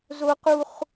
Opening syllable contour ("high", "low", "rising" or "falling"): high